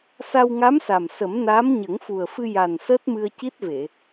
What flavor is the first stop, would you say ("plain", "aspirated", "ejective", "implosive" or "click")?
plain